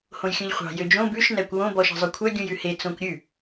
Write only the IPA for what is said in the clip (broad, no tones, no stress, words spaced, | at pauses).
hõjxʲũʎχʷɑ̤ jød͡ʒõ bʉʃ nækʷwõ bɔʃɑ̤zˤɵkʷʰœ ɡʲũjʉhe t͡sõkʷɾʲʉ